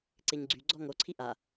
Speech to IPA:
ǀeɲɡ͡ǀy ɡ͡ǀɔŋo ǀʰiʔa

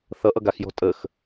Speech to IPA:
θʌʔʌ ɡaxjɔ̤ tʼəx

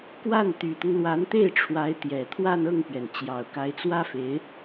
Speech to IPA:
kwa˥˩n t̪y˨˩t̪ʊ˦ŋlwa˧˥nt̪e˥˩ɪ̯ ʈ͡ʂʰwa˧˥ɪ̯t̪jɛ˨˩ t̪ʰwa˥˧nɤ˥˩ŋpɥɛ˩n t͡ɕjɑ˨˩ʊ̯ka˧˥ɪ̯t͡swä˥fe˧˥ɪ̯

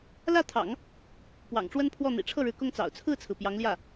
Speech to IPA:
lä˥˩t̪ʰɑ̰˨˩˦ŋ | pwɑ̰˨˩ŋʈ͡ʂwə˥npʰwɔ˥˩ n̪ḭ˨˩ʈ͡ʂʰɤ˥˩ɻɻ̩˧˥ kʊ˥ŋt͡sɑ̰˨˩ʊ̯ t͡sʰɹ̩˥˩t͡sʰɹ̩˩ pjɑ˧˥ŋljä˥˩

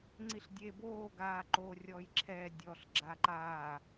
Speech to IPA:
ŋ͡ǀiɬdʲe boː ɡaːǃo rʲɔjǁʰɛ dʲɔɬ ɡ͡ǁaǃaː

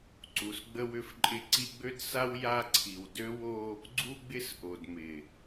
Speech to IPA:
ǀu˨s ɡ͡bə˦wʏ˦fǃʼɪ˦ǀi˦ ɡ͡bø˦dsa˦w ja˦ǀʰi˨w dø˦wo˦ | ɡ͡ǀu˦ɡ͡bɪ˦sʔo˨d mɪ˨

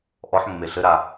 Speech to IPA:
ʔɔħ mːeɬɘɾa

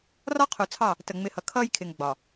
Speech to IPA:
rɒ˦qʰu˨t͡sʰɑ˦˨ | tə˨ŋ͡mɪ˨˦hʌ˨ kʰʌː˦jkʰɪ˨ŋ ɡ͡bɒ˨

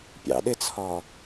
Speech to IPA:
pʲɑ̰ɗɪt͡sʰɒ

